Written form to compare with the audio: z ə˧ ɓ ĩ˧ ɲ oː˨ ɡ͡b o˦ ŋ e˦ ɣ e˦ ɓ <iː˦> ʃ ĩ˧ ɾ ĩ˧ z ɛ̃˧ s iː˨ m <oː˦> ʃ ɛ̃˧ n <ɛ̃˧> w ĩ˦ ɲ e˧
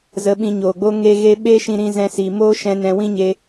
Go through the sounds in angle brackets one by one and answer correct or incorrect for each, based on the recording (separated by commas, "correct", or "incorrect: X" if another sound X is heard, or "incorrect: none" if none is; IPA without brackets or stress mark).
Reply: incorrect: eː˦, correct, correct